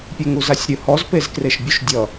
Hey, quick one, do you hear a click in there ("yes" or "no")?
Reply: no